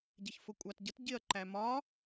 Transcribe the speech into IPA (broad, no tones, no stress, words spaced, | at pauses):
ɟɪçfʊkʷʼɑtɟət ɟɪɐ̯ ǃæmɒ